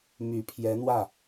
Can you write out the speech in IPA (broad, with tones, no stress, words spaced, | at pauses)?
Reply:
my˨˩pʰjɛ˧˥n̪wä˥˩